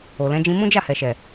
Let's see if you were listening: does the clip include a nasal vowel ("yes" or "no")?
yes